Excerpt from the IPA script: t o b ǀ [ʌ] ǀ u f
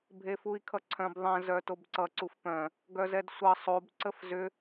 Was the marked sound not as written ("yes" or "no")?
no